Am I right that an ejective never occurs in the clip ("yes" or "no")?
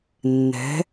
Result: yes